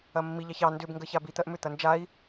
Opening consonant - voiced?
yes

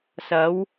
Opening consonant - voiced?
no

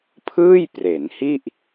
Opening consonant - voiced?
no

